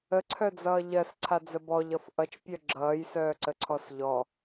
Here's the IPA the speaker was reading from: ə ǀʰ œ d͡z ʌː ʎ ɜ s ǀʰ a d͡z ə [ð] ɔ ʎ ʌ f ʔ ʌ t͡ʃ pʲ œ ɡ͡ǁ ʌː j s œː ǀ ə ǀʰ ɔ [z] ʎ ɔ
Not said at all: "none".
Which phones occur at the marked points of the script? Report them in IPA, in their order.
b, s

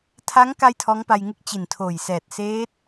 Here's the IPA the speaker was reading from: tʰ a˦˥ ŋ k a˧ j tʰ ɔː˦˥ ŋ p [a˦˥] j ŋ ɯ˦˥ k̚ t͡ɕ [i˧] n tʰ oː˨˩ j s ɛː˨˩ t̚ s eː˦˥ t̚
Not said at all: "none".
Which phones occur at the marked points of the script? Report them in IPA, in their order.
a˧, i˨˩

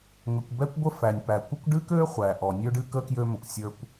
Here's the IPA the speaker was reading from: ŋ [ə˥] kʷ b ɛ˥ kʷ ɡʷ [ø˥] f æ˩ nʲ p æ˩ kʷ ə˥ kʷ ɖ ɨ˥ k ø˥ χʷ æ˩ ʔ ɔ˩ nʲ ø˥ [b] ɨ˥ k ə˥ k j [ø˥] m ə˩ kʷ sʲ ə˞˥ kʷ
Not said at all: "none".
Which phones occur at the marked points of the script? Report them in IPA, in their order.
ə˩, ə˥, ɖ, ø˥

